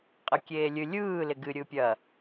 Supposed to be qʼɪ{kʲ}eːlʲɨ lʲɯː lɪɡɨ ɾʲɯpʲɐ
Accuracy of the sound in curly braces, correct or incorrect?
correct